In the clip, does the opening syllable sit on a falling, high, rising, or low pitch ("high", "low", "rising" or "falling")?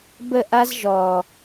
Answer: falling